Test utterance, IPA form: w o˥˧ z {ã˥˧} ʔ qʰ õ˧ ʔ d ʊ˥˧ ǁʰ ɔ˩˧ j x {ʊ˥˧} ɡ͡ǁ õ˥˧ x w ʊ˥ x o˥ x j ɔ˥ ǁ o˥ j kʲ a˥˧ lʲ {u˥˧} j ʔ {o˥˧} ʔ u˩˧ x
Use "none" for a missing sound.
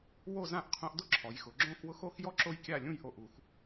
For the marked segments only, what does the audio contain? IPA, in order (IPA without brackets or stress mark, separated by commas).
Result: ã˥˧, ʊ˩˧, ũ˥˧, o˧˩